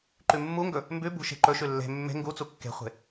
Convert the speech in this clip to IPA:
ǃ ʉ mː u ŋ ɡ ɵ | m b ʉ b ṳ ʃ e̤ ǃ ɵ ʃ ʉ lː e̤ mː e̤ ŋ ɡ u t͡s u kː e̤ χʷ e̤

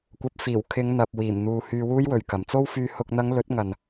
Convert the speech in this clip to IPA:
kʷ ɐ˨ p̚ f iː˨˩ w kʰ ɪ˨˧ ŋ n̪ ɐ˨ p̚ w iː˨˩ m n̪ uː˨ h yː˧ w uː˥ j w ɵ˨˩ ɥ k ɐ˨˩ m t͡s o˧ w f yː˨ h ʊ˨ k̚ n̪ ɐ˨˧ ŋ l ɵ˨˥ t̚ ŋ ɐ˨ n

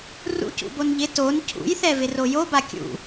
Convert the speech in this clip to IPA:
r ṵ c ṵ b o n ʎ ɪ t o n cʰ ṵ j θ ɛ v ɪ r o j o b a kʲ ṵ

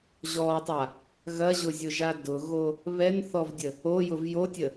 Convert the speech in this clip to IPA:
ʑ ɔ tˤ a | ɣ ɐ ʑ ʊ zʲ ʊ ʒ a d ʊ ɣ o | β ɛ n θ ɔ v dʲ ə | o j ʊ v j o tʲ ə

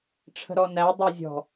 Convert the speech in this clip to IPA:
ʈ͡ʂʰ ə̤ ɾ ɔ n æ dˤ o zʲ ɔ̤

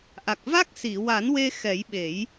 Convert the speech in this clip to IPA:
ʔ a˨˩ k̚ v a˦˥ k̚ s i˨˩˨ w a˨˩˦ n w e˧ x ɛ˨˩˦ j ɓ e˨˩˦ j

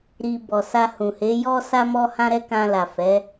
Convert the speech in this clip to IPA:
ɾ i˧ b ɔ˨ s a˧ h ũ˨ h e˨˦ j ɔ˦ s a˦ m ɔ˦ h ã˦ ɾ ɛ˦ k ã˧ l a˨ f ɛ˨˦

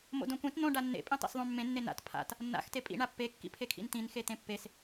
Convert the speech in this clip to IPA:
m o̰ d õ kʷ ẽ t n õ ɖ a nː ḛ pʼ ĩ tˤ ḭ s ðˤ õ mː ẽ nː e n a̰ t pʰ a̰ t | nː a̰ x t e pʼ ḭ ɳ a pː e kː ḭ pʰ e kʰ ḭ n t ĩ n x e t̪ ẽ pː e s

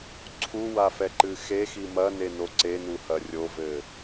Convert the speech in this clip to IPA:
ǀʰ u w a f ɛ ǃ ɨ x e x i m ɐ n e n o ǀ e n u h ɐ rʲ o v ɘ

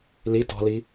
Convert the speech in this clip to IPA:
l i t ɔ̤ l i

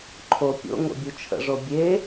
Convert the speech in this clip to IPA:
ǃʰ o pʲ o̰ ŋ o̰ bʲ u t͡ʃʰ ə̰ ʐ o bʲ e

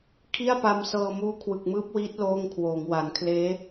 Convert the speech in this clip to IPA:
kʰ i˥˩ a̯ p a˧ m s ɤː˧ m uː˦˥ kʰ w ɯ˨˩ k̚ m ɯː˦˥ p̚ w iː˦˥ t̚ l oː˥˩ ŋ kʰ w oː˩˦ ŋ w a˩˦ n kʰ l eː˦˥

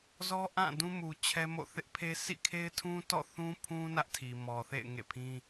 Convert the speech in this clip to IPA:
z ɔ˦ ʔ ã˦˨ d ũ˦ m u˨ t͡ɕʰ ɛ˦ m o̰˦˨ θ ɪ˦ ʔ pʰ e˦ s ḭ˦˨ kʰ e˦ ɪ̯ tʰ ũ˦ t ɔ̰˦˨ θ ũ˦ pʰ ũ˦ n ä˦ ʔ tʰ i˨ m ɔ˨ θ ḛ˦˨ ɪ̯ ŋ ḛ˦˨ pʰ ĩ˦

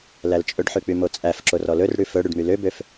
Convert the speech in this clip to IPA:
l æ l t͡ʃʼ ɵ ɖ ħ ʉ k͡p y m o t͡sʼ æ f ǁ o r ɔ l ɵ r ɽ ʉ f ɵ ɽ y ɖ m y l ø b ø f

